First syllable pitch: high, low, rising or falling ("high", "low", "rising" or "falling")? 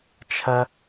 high